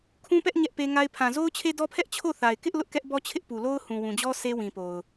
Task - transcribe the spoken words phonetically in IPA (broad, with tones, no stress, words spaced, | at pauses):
kʰũ˦pɛ˦ʔ ɲɛ˦ʔpe˦ŋa˦ɪ̯ pʰã˨zo˦ʊ̯t͡ɕʰe˦ dɔ˦pʰɛ˦ʔ t͡ɕʰo˦˨ θa˨ɪ̯kɪ˦ʔ lʊ˦ʔkɛ˦ʔbɔ˦t͡ɕʰɪ˦ʔ pu˨lo˦ʊ̯ hũ˨wũ˨d͡ʑɔ˦ sʰe˦wĩ˨po˨ʊ̯